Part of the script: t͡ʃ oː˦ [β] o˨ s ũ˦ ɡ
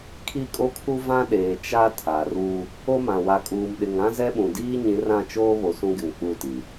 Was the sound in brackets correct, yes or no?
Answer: yes